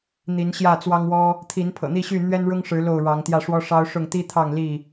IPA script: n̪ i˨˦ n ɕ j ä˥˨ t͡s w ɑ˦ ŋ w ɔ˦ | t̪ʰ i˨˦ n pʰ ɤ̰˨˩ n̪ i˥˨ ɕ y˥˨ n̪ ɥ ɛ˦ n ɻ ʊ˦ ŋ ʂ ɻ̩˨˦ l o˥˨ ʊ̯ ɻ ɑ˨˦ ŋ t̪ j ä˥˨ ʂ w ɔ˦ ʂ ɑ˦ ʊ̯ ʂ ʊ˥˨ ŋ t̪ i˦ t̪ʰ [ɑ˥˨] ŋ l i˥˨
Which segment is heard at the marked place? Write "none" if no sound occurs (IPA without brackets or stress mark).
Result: ɑ˥˨